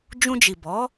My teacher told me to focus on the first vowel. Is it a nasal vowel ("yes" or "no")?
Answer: yes